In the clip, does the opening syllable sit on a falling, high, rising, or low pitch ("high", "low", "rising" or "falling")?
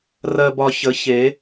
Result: low